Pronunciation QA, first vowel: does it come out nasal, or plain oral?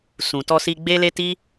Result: nasal